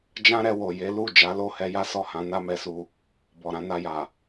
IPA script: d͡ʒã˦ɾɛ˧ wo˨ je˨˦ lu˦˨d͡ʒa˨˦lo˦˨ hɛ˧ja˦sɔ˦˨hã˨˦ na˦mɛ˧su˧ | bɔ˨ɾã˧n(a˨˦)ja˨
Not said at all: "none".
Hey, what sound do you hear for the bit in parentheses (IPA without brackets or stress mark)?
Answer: a˧